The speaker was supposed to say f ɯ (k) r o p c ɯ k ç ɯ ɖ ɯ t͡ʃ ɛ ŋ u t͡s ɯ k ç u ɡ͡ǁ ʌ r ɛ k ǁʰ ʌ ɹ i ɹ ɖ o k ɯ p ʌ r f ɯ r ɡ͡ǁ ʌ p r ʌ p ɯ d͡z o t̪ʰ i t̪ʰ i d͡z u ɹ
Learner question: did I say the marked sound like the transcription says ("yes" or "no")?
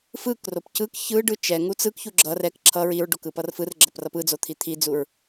yes